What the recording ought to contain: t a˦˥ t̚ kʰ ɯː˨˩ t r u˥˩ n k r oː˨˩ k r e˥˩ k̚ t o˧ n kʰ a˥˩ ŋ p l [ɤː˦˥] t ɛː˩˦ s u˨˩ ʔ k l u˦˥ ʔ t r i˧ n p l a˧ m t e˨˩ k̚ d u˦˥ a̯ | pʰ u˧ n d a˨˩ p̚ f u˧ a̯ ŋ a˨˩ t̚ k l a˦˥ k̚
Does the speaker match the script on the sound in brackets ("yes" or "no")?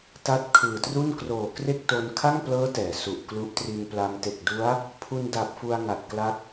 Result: yes